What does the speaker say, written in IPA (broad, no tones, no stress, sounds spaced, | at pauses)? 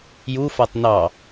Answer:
j u f a tˤ n ɑ